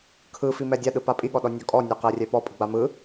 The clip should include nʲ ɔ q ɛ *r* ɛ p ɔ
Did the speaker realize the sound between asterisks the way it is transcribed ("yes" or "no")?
no